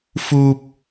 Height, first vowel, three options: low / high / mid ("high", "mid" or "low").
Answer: high